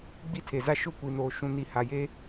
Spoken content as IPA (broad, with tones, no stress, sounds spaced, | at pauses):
ɡ͡b i˦ tʰ e˨ z a˦ ʃ ʊ˦˨ kʷ i˨ n oː˨ ʃ ũ˨ n i˨ h a˨ j e˦